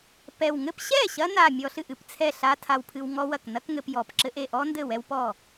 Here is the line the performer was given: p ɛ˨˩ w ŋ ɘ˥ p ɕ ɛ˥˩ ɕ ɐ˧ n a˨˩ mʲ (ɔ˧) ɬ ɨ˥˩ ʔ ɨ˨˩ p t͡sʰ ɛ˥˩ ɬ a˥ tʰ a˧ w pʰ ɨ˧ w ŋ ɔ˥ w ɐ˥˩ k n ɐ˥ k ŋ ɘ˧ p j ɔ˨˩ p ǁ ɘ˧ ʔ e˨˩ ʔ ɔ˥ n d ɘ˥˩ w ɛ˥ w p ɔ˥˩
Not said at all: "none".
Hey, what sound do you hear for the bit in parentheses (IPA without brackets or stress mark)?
ɔ˧